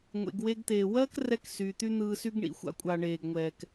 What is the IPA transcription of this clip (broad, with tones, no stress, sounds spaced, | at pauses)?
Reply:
ŋʷ ḛ˩ ɡ w e˧ ɡ t̪ eː˩ w ɜː˥ k r ɛ˧ k s yː˩ t̪ y˧ n̪ ɯː˧ s y˥ ɡ ɳ ḭ˩ xʷ a̰˥ kʷʼ a˩ ɳ eː˩ ɡ ŋʷ ɛː˩ k